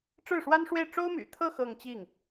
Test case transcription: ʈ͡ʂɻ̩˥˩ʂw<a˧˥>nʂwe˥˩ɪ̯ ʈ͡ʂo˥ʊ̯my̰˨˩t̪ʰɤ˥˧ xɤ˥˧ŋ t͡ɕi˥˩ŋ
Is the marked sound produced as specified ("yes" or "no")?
no